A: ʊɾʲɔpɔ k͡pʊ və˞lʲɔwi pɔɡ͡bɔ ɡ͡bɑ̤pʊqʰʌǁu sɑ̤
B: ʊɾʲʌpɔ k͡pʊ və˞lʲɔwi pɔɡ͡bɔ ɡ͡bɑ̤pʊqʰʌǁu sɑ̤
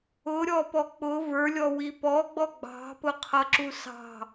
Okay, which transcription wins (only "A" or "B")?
A